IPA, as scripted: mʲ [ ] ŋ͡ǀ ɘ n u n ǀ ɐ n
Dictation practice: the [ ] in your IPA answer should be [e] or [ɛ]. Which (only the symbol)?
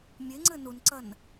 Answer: e